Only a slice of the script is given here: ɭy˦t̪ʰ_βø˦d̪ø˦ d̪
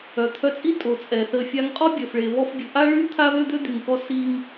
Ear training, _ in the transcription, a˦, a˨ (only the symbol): a˦